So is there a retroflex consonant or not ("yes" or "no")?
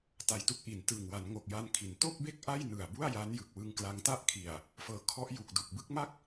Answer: no